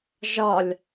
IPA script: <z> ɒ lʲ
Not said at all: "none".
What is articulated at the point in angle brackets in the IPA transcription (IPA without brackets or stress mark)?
ʒ